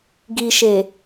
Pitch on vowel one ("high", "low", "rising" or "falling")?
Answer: low